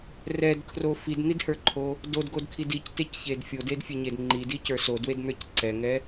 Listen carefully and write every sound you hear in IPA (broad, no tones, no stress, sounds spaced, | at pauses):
r ɛ d kʰ r o f i d n̪ i d h ə˞ ǃʰ o | d o d ɡ o d kʰ i d i c t e c ç e d fʲ o d e d fʲ e ɲ e d ŋ͡ǃ i d i c ə˞ s o d w e d n̪ ə˞ c ǀ ɛ ŋ ɛ